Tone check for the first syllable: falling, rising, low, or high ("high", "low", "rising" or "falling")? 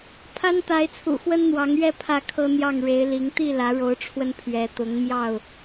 high